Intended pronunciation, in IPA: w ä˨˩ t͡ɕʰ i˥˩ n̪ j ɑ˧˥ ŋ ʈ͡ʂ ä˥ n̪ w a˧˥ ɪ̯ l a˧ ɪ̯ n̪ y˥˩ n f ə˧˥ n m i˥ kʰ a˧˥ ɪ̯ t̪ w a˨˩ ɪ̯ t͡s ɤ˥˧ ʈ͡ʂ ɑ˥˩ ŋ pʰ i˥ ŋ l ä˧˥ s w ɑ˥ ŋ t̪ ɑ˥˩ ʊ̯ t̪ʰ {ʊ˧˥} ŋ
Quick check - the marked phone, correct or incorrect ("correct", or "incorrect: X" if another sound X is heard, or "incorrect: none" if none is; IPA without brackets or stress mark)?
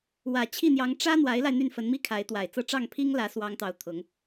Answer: correct